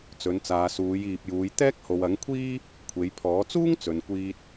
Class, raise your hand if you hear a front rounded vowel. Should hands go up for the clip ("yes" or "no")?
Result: no